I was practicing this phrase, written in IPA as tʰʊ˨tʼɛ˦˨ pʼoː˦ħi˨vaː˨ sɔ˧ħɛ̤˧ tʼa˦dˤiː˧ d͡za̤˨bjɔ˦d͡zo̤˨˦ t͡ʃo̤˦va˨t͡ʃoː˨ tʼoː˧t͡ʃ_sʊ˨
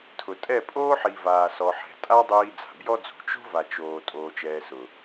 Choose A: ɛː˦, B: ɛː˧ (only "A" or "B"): B